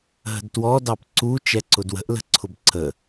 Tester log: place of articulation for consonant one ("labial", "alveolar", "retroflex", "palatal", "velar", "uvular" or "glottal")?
glottal